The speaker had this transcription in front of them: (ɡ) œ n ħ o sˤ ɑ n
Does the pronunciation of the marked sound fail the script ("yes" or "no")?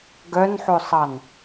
no